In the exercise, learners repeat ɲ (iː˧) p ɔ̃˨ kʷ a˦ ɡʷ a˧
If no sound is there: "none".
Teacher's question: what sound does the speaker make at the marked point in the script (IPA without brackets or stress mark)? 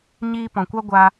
iː˧